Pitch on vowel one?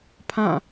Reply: falling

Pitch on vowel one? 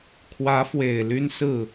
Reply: rising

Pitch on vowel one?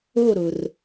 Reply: falling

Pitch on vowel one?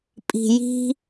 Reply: low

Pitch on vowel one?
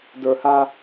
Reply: high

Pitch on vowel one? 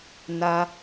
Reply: high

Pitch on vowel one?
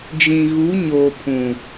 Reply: low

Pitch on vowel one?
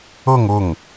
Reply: falling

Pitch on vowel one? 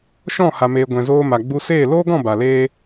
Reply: falling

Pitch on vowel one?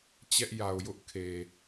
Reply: high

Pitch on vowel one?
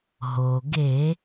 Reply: low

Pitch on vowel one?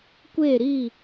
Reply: falling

